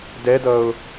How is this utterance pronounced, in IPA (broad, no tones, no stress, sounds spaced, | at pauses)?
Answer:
d ɛ d ʌ ʊ̯